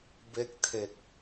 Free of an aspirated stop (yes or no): no